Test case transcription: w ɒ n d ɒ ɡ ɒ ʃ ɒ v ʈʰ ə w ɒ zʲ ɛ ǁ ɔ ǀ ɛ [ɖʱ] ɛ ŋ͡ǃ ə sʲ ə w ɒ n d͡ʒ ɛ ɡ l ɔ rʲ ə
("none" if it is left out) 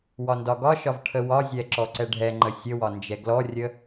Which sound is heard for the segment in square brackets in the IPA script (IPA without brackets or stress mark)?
ɖʱ